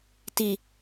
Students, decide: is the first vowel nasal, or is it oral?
oral